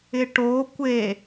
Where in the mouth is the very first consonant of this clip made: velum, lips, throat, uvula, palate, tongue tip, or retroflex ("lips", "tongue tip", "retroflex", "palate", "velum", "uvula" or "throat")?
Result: retroflex